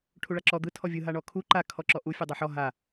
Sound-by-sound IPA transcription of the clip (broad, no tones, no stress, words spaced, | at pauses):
ʈʰuɭaǁɔ d̪ɯ tʰɔvʲɯ ɦaɳɔkʰu ǃa kʰɔǁɔʔu fʲɯdˤaħɔ ɦa